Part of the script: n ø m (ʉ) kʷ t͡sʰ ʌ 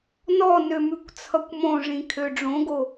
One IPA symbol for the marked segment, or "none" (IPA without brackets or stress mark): ʉ